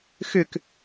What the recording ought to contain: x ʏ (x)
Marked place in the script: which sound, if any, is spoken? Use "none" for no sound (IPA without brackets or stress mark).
k